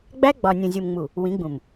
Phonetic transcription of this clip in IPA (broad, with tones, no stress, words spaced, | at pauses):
ɡ͡bæ˦ɡ͡bɒ˨nʲũ˨ zʲu˨mŋ͡mu˨ | wĩ˨˦ɡ͡bũ˨m